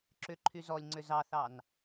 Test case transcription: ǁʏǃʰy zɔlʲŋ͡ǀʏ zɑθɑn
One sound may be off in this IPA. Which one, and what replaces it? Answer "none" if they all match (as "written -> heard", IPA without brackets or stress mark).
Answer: none